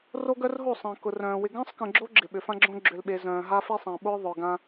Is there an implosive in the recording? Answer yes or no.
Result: yes